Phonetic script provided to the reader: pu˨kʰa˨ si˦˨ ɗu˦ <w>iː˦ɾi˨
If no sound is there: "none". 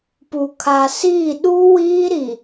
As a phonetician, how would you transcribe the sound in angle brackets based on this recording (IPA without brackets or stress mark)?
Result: w